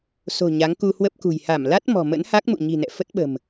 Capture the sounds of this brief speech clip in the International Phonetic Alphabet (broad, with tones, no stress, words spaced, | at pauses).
so̤˨˩ ɲa˨˦ŋku˧hwə˦˥p̚kṳ˨˩j ha˧˩m la˦˥t̚ mɔ̤˨˩mə̰˧˥nha˦˥k̚mṵ˧˨ ɲi̤˨˩nɛ̰˧˨ fə˦˥t̚ɓə̤˨˩m